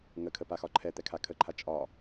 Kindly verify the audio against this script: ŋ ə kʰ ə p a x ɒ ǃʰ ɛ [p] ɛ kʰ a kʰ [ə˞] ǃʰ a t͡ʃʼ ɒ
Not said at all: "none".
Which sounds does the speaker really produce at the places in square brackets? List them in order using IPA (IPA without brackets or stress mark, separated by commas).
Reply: t̪, ə